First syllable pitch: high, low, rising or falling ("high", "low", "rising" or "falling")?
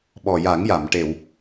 low